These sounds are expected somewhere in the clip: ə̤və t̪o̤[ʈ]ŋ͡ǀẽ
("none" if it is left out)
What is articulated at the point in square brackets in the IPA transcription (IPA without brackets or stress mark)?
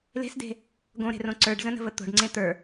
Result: ɖ